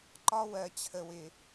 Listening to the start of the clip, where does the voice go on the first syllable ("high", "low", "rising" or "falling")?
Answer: high